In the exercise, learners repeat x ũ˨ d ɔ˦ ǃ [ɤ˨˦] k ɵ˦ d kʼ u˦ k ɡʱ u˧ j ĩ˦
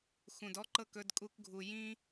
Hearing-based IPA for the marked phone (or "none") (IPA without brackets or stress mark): ɤ˦˨